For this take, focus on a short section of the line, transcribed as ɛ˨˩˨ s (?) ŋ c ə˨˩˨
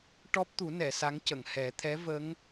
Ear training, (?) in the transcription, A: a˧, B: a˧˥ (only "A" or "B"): B